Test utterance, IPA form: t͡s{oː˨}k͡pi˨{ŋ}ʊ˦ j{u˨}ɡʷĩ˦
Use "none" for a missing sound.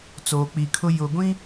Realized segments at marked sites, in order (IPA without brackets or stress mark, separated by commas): oː˨, kʰ, ʊ˨